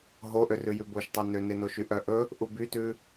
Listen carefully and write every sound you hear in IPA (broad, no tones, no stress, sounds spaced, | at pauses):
ɦ o ʔ ø r ʉ j ʉ b o ʃ tˤ ɵ n ø n e n o ʃ y ʔ œ ʔ ɵ | ʔ u b y t ʉ